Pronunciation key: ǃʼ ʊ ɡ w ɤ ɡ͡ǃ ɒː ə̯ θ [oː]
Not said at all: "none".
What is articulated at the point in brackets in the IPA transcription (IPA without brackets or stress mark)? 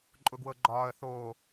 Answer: oː